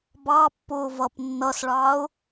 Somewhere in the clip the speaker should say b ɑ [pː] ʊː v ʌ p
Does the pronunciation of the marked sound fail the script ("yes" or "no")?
no